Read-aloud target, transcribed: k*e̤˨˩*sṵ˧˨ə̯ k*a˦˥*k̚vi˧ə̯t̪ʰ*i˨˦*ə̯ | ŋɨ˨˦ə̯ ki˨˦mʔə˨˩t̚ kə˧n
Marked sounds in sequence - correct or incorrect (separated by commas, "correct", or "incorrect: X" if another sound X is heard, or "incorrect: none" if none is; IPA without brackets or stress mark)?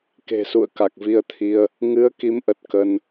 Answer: correct, incorrect: a˨˩, incorrect: i˧